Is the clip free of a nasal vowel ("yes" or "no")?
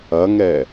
yes